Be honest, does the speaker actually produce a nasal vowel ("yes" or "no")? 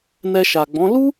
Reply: yes